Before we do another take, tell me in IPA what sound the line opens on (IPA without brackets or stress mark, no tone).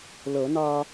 l